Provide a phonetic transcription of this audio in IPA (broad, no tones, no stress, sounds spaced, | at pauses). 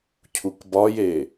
cʰ u k b ɒ j e